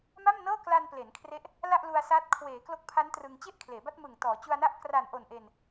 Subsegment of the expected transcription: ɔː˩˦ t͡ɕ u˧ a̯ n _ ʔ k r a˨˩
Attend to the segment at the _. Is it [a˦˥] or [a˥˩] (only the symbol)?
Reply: a˥˩